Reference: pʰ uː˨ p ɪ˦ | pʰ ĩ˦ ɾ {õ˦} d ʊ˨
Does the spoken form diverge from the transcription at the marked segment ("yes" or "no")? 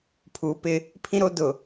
yes